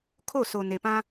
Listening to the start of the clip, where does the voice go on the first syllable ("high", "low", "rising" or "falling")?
falling